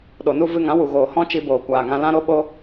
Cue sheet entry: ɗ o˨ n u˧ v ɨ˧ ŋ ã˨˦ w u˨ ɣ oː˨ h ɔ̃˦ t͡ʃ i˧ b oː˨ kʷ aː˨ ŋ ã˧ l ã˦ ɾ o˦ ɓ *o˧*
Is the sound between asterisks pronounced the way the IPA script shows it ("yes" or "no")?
no